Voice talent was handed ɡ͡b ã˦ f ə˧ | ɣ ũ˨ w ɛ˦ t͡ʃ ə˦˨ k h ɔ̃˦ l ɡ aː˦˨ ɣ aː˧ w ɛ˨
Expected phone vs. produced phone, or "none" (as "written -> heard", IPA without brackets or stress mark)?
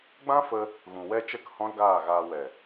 none